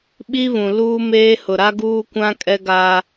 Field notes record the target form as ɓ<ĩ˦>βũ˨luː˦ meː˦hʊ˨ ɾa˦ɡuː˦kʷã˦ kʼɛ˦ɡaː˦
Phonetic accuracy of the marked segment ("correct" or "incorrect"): incorrect